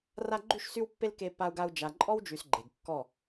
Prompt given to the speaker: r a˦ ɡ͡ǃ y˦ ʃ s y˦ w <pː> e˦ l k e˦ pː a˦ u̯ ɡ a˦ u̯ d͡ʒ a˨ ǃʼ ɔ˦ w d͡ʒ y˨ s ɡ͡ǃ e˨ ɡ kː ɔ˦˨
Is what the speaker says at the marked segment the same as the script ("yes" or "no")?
yes